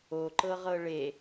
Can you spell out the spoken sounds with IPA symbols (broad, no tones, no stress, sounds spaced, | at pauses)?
o ǃ ɤ ʁ ɤ ɭ e